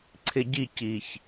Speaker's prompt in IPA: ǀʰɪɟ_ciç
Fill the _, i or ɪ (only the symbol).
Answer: i